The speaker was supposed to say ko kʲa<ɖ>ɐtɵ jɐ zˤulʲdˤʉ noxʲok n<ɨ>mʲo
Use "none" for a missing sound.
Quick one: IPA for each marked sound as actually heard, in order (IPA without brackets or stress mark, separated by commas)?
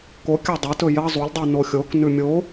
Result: dˤ, ʉ